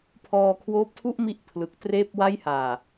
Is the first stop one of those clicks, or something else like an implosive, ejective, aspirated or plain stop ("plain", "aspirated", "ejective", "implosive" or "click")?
aspirated